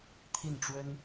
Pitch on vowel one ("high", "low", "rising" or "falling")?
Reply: falling